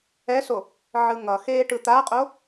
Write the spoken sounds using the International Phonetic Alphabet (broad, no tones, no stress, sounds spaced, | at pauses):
ɛ s o | ʕ ɯ ŋ ʌ x eː ʈ ɯ t̪ a qʼ o